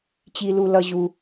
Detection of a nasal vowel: absent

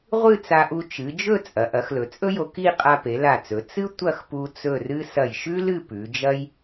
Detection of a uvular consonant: present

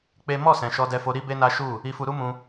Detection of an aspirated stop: absent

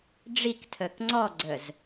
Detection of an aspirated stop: present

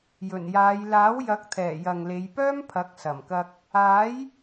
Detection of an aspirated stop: present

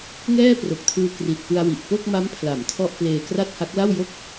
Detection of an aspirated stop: present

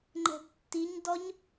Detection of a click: present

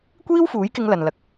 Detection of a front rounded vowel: absent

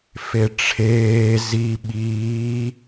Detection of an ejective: absent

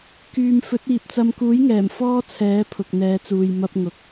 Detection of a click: absent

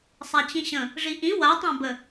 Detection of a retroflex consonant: present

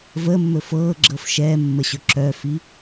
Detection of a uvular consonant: absent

